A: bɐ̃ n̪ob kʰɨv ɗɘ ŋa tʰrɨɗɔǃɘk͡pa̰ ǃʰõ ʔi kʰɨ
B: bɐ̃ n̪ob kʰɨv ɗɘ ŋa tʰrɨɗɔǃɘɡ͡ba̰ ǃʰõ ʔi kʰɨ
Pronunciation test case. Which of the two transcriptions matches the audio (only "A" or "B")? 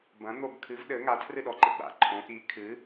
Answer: B